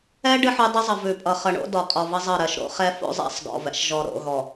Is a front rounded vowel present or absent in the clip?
absent